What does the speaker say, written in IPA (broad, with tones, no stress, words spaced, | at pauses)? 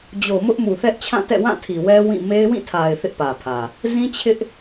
d͡ʑo˨ mʊ˦ʔmu˨θɛ˦ʔt͡ɕʰã˦˨ tɛ̰˦˨wã˦˨tʰi˨wɛ˦ wĩ˦˨ me˦ɪ̯wĩ˦˨tʰa˨ɪ̯ θɪ˦ʔpä˨pʰä˨ | zĩ˦t͡ɕʰɪ˦ʔ